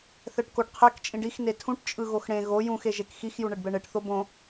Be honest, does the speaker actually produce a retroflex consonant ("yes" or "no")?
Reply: yes